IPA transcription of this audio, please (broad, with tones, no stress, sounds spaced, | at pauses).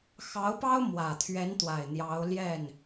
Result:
x ɑ˧˥ ʊ̯ p ɑ˥ ʊ̯ m w ä˨˩ t̪ʰ ɥ ɛ˧˥ n t̪ w a˨˩ ɪ̯ n̪ j ɑ˧˥ ʊ̯ l j ɛ˥˩ n